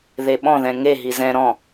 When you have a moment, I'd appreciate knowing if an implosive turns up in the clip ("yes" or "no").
yes